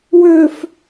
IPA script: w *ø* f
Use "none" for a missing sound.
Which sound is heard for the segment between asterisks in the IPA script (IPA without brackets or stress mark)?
ø